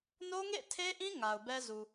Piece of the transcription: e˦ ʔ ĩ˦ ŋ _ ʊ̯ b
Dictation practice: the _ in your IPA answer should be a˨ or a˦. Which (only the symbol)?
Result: a˨